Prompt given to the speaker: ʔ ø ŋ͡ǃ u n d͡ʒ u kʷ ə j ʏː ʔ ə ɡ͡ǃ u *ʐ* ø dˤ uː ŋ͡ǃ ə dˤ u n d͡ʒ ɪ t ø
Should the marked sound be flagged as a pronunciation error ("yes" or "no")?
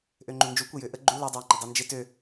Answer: yes